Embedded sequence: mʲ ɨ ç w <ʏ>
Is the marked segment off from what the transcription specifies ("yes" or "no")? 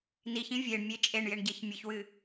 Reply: yes